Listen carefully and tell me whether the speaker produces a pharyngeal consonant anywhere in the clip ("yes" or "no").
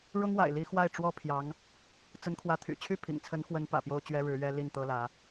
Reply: no